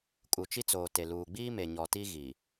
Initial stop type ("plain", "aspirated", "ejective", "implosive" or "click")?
ejective